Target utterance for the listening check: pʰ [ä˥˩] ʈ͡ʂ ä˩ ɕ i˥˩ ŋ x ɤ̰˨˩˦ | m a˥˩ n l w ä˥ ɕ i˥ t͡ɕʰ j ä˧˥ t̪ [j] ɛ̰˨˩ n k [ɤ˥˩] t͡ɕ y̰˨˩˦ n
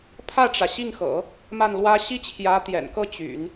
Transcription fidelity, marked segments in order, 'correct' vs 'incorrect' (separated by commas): correct, correct, correct